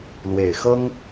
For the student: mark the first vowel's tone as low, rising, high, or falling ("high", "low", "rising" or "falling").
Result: low